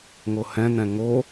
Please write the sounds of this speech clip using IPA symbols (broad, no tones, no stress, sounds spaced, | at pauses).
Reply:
ŋ o h ɛ̃ n̪ ɛ̃ ŋ o